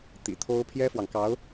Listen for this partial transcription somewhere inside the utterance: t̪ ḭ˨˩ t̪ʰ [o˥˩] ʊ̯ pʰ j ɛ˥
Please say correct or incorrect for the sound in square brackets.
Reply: incorrect: o˥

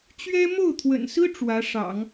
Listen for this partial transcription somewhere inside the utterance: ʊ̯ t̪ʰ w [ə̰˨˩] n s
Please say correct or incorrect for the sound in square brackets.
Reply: correct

